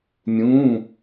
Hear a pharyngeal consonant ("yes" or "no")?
no